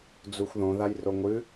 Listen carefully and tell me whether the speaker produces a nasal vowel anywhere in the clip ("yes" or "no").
yes